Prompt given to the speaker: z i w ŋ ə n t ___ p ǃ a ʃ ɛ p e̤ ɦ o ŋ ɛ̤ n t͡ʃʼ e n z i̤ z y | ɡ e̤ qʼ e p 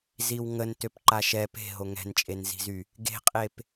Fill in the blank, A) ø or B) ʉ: A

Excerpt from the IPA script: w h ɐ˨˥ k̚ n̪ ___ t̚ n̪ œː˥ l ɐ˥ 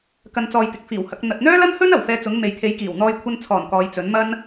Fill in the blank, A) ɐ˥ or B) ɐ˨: B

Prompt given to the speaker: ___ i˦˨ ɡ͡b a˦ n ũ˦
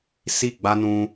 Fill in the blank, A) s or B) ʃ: A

